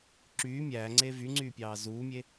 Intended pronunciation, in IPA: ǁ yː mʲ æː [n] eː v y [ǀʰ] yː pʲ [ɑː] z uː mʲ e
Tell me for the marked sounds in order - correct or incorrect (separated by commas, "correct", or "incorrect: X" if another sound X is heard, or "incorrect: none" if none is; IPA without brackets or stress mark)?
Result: incorrect: ŋ͡ǀ, incorrect: ŋ͡ǀ, correct